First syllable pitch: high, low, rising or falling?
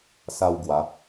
high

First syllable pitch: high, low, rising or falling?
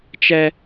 high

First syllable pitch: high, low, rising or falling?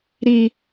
high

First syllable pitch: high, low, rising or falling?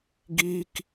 high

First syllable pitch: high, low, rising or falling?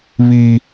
high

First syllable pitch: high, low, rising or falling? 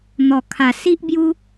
low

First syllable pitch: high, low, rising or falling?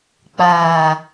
low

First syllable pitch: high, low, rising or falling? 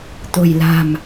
low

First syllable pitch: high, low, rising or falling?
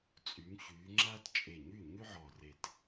rising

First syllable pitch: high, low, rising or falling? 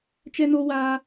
high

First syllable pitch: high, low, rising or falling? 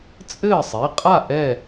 falling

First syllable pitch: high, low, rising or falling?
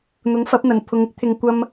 rising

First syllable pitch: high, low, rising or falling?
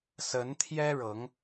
rising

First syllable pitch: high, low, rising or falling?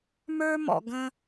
high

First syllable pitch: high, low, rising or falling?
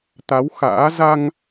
rising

